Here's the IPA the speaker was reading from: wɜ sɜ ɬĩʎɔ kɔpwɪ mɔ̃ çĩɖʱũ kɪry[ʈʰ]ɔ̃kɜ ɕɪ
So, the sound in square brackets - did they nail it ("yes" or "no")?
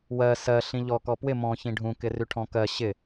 yes